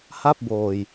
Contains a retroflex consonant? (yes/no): no